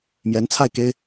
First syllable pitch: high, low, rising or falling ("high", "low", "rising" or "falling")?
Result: rising